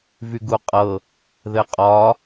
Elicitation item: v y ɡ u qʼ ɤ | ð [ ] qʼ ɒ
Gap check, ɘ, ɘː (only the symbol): ɘ